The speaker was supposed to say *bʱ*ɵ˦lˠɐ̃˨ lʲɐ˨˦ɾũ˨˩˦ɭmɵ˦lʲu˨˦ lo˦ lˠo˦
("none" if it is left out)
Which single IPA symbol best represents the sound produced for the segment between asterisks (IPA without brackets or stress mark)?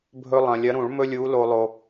bʱ